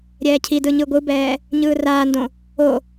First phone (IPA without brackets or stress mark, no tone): ɾʲ